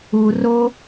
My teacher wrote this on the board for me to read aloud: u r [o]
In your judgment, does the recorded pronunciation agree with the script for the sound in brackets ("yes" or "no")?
yes